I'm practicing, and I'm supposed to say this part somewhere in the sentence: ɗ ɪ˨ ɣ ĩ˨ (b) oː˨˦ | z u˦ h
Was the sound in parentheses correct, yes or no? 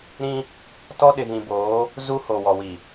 yes